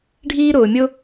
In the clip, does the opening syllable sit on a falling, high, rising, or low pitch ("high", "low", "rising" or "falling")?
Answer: high